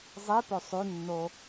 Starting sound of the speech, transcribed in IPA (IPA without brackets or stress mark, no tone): zˤ